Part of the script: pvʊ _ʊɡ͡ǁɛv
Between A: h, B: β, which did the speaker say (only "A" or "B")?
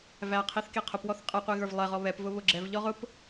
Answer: B